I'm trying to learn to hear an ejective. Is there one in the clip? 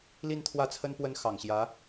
no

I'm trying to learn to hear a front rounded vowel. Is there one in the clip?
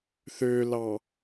yes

